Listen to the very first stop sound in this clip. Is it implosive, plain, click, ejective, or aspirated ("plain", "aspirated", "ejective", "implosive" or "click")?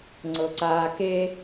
click